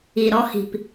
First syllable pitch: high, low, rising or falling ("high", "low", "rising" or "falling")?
low